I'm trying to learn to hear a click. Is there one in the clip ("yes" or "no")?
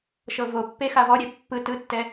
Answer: no